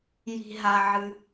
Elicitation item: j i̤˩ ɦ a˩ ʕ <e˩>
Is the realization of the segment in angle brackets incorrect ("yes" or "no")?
yes